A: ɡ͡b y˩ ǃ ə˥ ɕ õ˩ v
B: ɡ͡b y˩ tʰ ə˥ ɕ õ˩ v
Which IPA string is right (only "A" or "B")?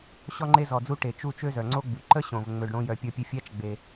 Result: A